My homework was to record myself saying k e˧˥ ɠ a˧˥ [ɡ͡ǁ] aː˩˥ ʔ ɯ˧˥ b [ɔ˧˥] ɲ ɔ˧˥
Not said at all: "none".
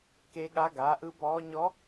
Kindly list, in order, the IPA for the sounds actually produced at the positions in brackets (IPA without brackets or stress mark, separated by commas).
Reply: ɡ, ɔː˧˥